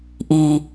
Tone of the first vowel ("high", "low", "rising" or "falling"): low